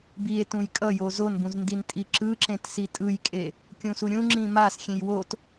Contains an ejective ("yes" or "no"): yes